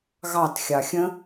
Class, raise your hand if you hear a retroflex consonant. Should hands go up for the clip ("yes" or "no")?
no